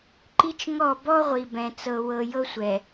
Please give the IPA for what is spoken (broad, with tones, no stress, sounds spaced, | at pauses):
ǃ i˦ t͡ʃ ŋ ɔ˦˨ b ɔ˦ ʁʷ i˨ b ɛ̃˨ t͡s ɤ˨ w ɤ˨ j ɤ˦ sʷ ɛ˨